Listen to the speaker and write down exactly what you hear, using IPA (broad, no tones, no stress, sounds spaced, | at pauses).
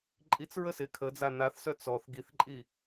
ǃʼ i t͡s ɹ ə s ɪ kʰ ə d͡z a n a θ s œ t͡s ɔ θ ɡ i θ ǃʼ i